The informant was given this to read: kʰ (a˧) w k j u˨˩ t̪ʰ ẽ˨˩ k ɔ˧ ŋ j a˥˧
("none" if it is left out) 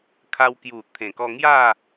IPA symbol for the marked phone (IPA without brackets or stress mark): a˧